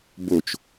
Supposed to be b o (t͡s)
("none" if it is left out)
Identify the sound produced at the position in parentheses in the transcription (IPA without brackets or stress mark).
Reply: t͡ʃ